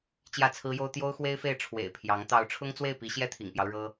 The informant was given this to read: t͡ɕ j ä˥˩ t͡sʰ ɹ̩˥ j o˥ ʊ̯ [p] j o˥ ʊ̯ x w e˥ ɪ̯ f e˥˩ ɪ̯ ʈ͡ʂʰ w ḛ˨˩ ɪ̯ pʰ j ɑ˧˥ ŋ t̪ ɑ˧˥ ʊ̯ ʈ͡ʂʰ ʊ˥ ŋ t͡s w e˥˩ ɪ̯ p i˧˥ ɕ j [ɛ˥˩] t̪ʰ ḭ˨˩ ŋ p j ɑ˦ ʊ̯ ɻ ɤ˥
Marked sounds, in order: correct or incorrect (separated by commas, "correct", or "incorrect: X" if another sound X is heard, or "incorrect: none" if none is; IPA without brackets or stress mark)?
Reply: incorrect: t̪, correct